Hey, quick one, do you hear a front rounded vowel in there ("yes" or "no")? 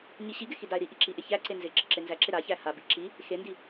no